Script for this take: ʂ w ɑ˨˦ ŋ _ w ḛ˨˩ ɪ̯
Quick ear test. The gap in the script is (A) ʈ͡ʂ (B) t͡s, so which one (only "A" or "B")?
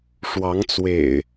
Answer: B